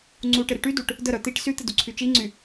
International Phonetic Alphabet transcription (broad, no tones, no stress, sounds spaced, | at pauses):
ŋ͡ǀ u ʈ ɪ ɾ ɪ ʈ y d u ʈ | d ə ɾ œ t̪ i ʈ s y t̪ ɪ d u ǀʰ y t͡ʃ i ŋ͡ǀ y